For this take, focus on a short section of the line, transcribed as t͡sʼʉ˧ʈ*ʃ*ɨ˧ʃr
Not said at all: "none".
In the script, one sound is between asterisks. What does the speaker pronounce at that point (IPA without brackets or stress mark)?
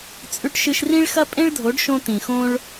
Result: ʃ